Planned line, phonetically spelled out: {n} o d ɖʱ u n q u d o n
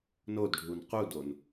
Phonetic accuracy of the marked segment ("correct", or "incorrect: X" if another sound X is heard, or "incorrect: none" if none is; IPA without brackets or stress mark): correct